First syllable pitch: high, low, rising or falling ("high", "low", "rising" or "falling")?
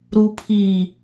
low